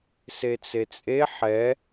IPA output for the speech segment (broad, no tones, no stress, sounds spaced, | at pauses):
s e t͡s e t͡sʼ e ħ ɛ